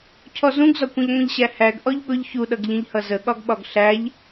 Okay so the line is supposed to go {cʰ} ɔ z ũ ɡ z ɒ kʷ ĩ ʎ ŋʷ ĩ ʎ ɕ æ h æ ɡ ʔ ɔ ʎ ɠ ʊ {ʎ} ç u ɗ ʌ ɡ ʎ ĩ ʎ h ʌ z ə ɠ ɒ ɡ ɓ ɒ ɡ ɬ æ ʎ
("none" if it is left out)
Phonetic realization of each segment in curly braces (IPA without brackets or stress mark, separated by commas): cʰ, ʎ